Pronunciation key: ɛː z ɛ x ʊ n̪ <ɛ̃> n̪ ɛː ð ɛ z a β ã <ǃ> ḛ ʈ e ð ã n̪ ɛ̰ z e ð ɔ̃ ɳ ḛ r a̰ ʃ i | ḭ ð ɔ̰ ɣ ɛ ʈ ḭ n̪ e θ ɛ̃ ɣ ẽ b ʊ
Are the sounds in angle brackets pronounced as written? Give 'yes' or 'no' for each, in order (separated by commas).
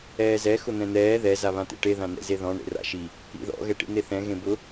yes, no